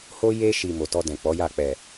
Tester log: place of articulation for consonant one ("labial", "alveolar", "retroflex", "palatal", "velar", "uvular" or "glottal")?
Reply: glottal